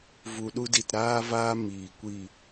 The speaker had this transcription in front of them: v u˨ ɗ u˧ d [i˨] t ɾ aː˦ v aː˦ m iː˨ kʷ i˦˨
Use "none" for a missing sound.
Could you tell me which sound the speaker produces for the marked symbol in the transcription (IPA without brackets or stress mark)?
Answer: i˨